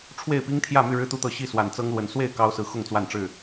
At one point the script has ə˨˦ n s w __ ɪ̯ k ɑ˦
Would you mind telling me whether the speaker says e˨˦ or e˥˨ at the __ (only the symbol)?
e˥˨